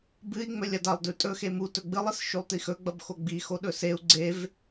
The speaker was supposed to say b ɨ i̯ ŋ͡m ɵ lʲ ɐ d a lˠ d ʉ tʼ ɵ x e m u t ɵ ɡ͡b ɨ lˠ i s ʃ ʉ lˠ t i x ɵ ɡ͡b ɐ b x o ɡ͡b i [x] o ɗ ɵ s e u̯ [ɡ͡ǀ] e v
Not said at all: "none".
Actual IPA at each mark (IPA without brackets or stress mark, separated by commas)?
x, ɡ͡ǀ